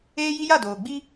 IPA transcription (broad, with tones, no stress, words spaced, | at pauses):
eː˦ji˦ja˦˨ doː˨ɡ͡bi˦